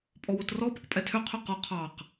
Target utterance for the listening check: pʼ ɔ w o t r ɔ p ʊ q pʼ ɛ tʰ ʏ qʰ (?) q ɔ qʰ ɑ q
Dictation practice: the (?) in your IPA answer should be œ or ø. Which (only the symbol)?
ø